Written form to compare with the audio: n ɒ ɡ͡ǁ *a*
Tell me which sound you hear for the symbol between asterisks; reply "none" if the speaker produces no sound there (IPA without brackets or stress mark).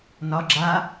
a